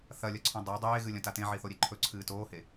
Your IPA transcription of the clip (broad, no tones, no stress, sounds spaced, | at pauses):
θ ɐ lʲ ɐ ǀʰ ũ dˤ a dˤ eː ɣ ɨ lʲ ɐ̃ t a t ẽ ʕ i θ o ɾʲ e ǃʰ ɵ ǀʰ ɨː t oː h e